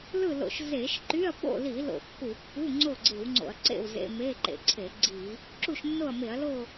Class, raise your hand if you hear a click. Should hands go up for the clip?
yes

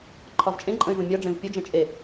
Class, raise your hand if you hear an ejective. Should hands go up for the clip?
yes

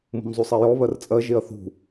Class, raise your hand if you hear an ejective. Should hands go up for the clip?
yes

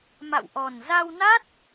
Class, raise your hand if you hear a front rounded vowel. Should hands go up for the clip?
no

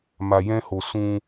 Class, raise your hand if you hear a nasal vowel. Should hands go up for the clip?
yes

